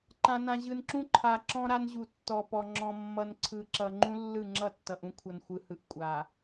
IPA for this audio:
ǃ ã˨ n ã˨ ʑ ɯ˨ n ǁ ũ˦ ǃʰ a˨ ǁ ɔ̃˦ ɾ a˦ n ʑ u˨ tː ɔ˨ p ɔ˨ ŋ͡ǁ ɔ̃˨ mː ʌ˨ n ǀʰ ɯ˨ ǁ ʌ˨ ŋ͡ǃ ũ˦ lː ɯ˦˨ ŋ͡ǁ ʌ˦˨ tː ʌ˨ ʔ ũ˦ kʷʰ ʌ˨ n xʷ ɯ˨ h ɯ˨ ʔ kʷʼ a˨

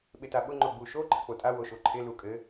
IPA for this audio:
ɓ ɪ t a ɓ ʊ ŋ͡ǃ o ɡ͡b u ʃ o ǃʰ ə k͡p o tʼ a w o ʃ o ǃʰ ɪ l u kʼ ɘ

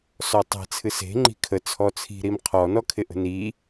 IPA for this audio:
s ɔ tˤ e̤ t͡sʰ ɨ s e̤ ŋ͡ǃ i̤ kʰ ə t͡sʰ ɔ t͡sʰ i̤ ɾ i m qʰ ɔ n ɔ kʰ ɪ ʔ ə̤ n i

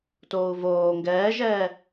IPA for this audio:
t oː u̯ v oː ŋ ɡ ɛː ʒ ɛː

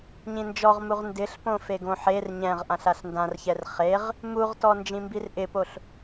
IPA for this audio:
ɲ ĩ n d͡ʒ ɔ ʁ m u ʁ n d ɪ ɬ p õ f e ɡ õ ħ e r ɲ ɛ̃ ʁ ʔ ã ɬ a ɬ n d ã r ç ɛ r χ e ʁ | m u ʁ t ɔ n d͡ʒ ĩ m b i r ʔ ɪ p o ɬ

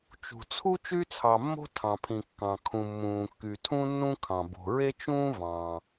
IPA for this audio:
t͡ʃ ṳ˩ t͡sʰ u˥ t͡ʃ y˥ t͡sʰ ɑ˩ mː o̤˥ tʰ ɑ̃˩ pʰ ĩ˩ kː ɑ̃˩ kʰ ũ˩ mː ũː˩ kː y˩ tʰ ũ˥ nː ũ˥ kʰ ɑ̃˩ b o̤˩ ɹ e˥ t͡ʃ ũː˥ v ɑ̃˩

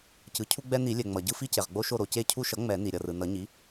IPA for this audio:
c ɯ˩˥ cʰ u˦ ɡ͡b ɛ˦ n i˨˩˦ lʲ ɛ˩ ŋ͡m ʌ˩ ɟ ɯ˦ f i˦ c e˩ ʁ ɡ͡b o˦ ʃ o˦˨ ɾ o˩ c e˦˨ cʰ u˦ ʃ ʌ˩˥ ŋ͡m ɛ˨˩˦ n i˩ ɾʲ ʌ˩ r ɯ˩ n ʌ˨˩˦ ɲ i˩˥

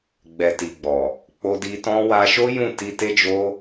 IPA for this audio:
ɡ͡b ɛ˨ t i˨ ɡ͡b ɔ˨ | k͡p o˧ d i˧ t ɔ̃˦ w a˧ ʃ o˦ j ũ˦˨ t i˧ t e˦ d͡ʒ o˦

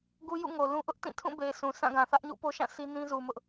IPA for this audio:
ɡ u˦ j ṵ˦˨ ŋ o˨ l ũ˦ ʔ ʊ˦ ʔ t ĩ˦˨ tʰ ũ˦˨ b e˨ ɪ̯ sʰ ũ˨ s ã˦˨ ɡ ã˨ θ ä˦ ʔ ɲ ṵ˦˨ p o˦ ʃ ã˦˨ sʰ i˦ n ĩ˦ z u˨ m ʊ˦ ʔ

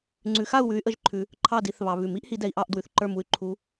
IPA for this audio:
ŋ͡ǀ ʉ˨˦ x a˦˨ u̯ w ʉ˨˦ y̯ ʔ ə˨˦ ʒ ǃʰ ʉ˨ | ǃʰ ɑ˦˨ d i˨˦ θ β ɑ˨ β ʉ˨˩˦ m i˦ ʔ h i˨˦ d ɛ˨ i̯ ʔ ɑ˦˨ ʔ d w ʉ˨ θ ǃ ə˞˦˨ m u˦ y̯ ǃʰ u˨˦

